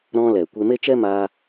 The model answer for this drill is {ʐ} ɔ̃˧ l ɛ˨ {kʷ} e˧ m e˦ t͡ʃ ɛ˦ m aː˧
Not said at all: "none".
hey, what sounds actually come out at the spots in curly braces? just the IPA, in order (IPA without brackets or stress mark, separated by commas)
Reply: ɾ, kʷ